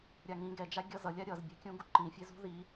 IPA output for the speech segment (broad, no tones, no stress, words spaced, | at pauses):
ɾʲaŋĩ ɡɛd͡ʒa ɡʲʌzʌlʲa ɾʲʌzbʲa̤kʲũ ɡuǃĩfʲezṳ ði